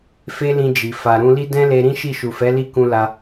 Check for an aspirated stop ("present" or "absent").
absent